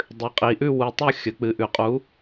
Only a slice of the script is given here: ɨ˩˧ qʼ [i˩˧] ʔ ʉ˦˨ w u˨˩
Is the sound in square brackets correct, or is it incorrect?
correct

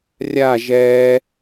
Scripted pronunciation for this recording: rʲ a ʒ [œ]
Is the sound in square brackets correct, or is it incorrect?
incorrect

